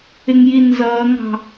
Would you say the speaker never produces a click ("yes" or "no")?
yes